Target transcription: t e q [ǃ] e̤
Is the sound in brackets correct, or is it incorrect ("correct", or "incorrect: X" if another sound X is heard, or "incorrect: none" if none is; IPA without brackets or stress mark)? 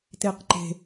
correct